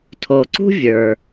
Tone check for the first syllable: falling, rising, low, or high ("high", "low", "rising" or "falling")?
low